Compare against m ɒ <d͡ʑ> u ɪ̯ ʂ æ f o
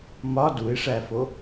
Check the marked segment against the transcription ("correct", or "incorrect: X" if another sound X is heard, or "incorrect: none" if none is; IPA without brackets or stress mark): incorrect: d